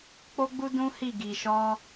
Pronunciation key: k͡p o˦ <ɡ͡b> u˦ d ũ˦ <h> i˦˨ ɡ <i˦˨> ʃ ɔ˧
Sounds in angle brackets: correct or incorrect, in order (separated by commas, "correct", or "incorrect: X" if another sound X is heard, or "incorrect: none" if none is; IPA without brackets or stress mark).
correct, correct, incorrect: i˨